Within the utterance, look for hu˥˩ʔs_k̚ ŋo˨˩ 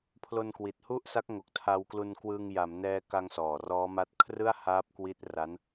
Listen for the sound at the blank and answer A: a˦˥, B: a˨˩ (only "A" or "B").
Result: A